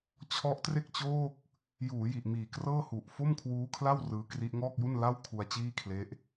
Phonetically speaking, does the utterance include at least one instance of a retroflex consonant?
no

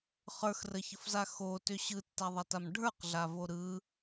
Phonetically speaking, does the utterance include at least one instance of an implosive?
no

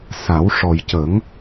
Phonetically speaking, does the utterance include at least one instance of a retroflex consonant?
yes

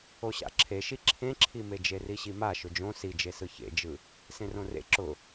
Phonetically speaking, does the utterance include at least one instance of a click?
yes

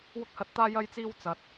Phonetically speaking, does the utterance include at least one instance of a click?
no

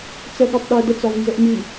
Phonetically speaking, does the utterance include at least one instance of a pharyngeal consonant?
no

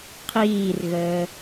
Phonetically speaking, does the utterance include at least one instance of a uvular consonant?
yes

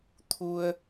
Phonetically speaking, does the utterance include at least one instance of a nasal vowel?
no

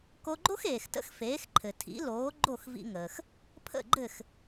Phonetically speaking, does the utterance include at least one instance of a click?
yes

